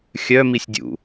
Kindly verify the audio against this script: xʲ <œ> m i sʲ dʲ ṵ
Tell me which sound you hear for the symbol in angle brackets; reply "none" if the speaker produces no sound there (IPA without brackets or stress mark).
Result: œ